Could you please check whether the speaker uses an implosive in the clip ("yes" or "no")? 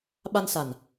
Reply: yes